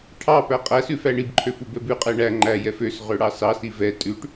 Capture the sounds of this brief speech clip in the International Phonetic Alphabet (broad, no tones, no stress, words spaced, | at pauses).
ʈʰɑpæ qʼæsʉ fæɳibǃʰøf ubɛbʉqʼɛ ɳæ ŋ͡ǃæjɛf øs ʁøɽɑsɑsi vɛ tʼʉʈ